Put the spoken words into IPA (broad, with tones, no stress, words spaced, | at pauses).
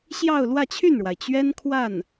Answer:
ɕjɑ˥˧ʊ̯ lwä˥˧t͡ɕʰy˥˩nɻwa˩ɪ̯ t͡ɕɥɛ˥nkʰwa˥˩n